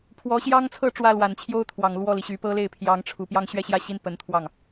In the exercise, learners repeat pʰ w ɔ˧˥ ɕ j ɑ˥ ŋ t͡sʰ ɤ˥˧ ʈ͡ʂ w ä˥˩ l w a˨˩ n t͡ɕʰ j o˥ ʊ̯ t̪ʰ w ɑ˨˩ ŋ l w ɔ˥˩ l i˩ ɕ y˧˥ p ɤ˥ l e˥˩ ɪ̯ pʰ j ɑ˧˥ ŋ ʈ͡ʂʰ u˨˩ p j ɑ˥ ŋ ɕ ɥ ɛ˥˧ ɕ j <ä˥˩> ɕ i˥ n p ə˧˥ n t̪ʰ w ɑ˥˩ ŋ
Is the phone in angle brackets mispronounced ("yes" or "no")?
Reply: no